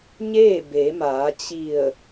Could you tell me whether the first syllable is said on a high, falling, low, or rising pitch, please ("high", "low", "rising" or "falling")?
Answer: falling